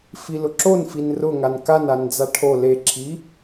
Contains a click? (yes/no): yes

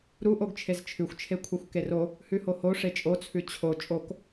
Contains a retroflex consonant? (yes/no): yes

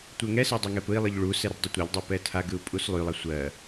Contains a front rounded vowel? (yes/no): yes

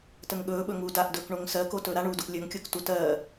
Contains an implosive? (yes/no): yes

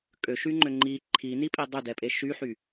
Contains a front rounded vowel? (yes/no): yes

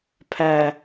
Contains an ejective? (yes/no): no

